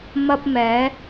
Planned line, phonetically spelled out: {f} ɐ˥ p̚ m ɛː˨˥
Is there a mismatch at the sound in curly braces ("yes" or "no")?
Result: yes